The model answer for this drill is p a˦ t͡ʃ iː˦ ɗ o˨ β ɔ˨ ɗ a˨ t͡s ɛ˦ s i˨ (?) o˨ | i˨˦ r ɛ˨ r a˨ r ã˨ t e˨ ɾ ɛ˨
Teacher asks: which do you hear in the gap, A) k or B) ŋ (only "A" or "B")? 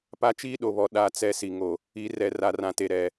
B